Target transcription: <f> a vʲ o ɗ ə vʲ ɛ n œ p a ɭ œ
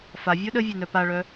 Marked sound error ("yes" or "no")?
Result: no